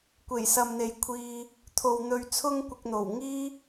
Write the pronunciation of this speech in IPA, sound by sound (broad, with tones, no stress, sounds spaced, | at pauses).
kʷ e˨˩ j s ɐ˨ m n̪ e˨ j kʷʰ iː˧ | t̪ʰ o˨ w n̪ ɵ˨ ɥ t͡sʰ ʊ˥ ŋ kʷ ɪ˧ k̚ n̪ o˨˩ w ŋ iː˥